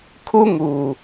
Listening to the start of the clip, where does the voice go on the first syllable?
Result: high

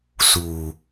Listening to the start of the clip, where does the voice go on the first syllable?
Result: low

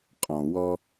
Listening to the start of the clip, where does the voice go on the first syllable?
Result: low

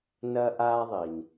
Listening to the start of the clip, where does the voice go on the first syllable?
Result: high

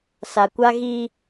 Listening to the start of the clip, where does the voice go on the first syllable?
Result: low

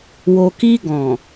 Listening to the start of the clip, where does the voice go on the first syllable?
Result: low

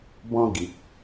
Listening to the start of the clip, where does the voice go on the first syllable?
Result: high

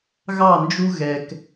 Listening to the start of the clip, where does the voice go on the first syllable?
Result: falling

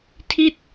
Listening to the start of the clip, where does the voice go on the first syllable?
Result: falling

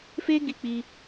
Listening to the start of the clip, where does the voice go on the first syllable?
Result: high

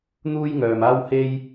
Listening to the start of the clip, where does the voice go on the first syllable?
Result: high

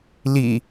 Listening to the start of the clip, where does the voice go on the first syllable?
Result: low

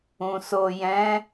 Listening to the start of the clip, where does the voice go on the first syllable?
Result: low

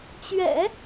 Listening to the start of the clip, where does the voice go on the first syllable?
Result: low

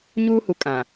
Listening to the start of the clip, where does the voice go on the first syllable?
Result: high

